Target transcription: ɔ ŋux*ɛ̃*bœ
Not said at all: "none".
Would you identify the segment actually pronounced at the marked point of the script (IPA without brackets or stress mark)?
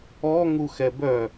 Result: ɛ